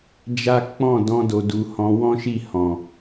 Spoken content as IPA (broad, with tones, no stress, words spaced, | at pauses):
d͡ʒa˦ k͡pɔ̃˦˨ dɔ̃˧do˨du˨ hɔ̃˧wɔ̃˦ʃi˦˨ hɔ̃˨